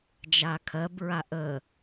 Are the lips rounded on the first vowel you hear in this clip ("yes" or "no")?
no